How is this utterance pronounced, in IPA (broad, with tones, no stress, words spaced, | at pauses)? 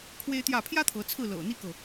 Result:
kʰwe˦ɪ̯t̪jä˥˨ pʰjä˦ t̪ʰɤ˨˦t͡sʰɹ̩˥˨ lɤ̰˨˩n̪i˦kɤ˨